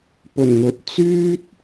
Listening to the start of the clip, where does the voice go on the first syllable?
low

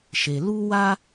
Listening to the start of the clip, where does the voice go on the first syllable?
low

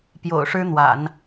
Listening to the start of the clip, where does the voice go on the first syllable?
low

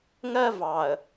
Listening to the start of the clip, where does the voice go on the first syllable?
high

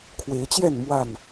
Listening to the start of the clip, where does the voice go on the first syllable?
rising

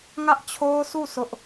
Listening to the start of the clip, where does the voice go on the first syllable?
high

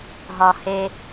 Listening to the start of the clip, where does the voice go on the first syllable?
low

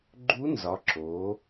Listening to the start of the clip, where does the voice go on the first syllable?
rising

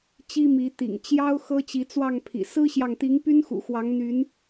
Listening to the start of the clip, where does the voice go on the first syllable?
high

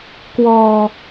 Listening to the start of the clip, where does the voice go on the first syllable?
low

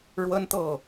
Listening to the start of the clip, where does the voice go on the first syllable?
high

